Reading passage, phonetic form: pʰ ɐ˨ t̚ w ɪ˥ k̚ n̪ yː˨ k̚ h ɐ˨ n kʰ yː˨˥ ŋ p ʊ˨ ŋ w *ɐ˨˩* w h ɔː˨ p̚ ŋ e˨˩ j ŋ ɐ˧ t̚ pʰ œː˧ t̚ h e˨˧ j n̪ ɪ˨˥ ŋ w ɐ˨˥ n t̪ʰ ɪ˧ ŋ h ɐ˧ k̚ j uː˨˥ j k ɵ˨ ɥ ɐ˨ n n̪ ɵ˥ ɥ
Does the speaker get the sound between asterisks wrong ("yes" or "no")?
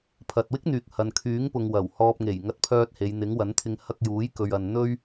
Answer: no